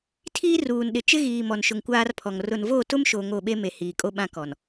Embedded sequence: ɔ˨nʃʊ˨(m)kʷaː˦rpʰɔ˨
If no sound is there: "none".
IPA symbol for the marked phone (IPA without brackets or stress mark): ŋ